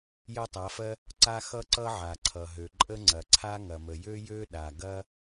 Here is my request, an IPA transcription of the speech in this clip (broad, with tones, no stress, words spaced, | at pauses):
jɐ˦tˤa˩˧fɜ˦ | ǀa˦ xʌ˦ǀʌ˦ ʕa˩ǀʰʌ˩ɦø˩ ǃʼə˦ŋ͡ǀɐ˩ǀʰa˦ ŋɐ˩mə˩jø˦ jø˦ɗa˩ ɡɐ˦